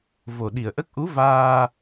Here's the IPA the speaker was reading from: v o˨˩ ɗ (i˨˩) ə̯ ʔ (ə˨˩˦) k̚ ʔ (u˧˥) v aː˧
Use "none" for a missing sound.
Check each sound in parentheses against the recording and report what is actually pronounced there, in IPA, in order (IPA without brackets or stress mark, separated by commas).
i˨˩, ə˦˥, u˧˥